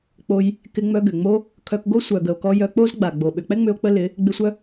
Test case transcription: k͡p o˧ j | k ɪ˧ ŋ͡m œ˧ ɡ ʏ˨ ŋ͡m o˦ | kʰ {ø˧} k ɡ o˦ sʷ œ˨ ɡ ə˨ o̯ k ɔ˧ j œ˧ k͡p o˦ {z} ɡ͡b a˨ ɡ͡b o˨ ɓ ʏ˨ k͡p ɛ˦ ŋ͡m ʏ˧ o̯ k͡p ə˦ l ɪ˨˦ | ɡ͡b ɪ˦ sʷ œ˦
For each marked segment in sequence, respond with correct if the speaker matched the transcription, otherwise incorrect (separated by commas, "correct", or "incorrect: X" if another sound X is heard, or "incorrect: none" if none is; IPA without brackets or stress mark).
incorrect: œ˧, correct